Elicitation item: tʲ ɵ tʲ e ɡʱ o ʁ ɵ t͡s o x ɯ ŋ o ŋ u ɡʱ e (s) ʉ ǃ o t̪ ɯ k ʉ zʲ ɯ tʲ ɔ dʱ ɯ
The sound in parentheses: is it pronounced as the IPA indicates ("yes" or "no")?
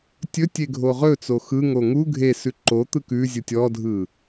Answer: yes